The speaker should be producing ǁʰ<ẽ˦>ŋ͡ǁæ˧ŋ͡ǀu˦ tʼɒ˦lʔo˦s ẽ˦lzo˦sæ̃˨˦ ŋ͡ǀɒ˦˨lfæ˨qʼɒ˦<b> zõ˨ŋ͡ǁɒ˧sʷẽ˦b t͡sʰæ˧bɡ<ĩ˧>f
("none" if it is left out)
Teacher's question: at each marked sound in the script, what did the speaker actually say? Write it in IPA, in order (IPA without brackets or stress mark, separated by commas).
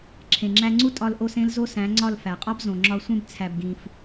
ẽ˨, b, ĩ˧